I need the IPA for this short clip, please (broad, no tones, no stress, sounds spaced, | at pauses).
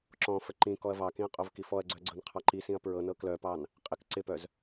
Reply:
ǁ ɔ̃ f ə ǃ ĩ k ɔ ɐ̯ v ɑ k ĩ ɐ̯ qʼ o v k i f ɔ ɐ̯ ɡ͡ǀ œ ɡ͡ǀ ɤ n qʰ ɑ ǃ i s ĩ ɐ̯ p ɹ ɤ n ɤ k l œ p ɑ n | qʼ ɪ k ǀ ɪ p œ z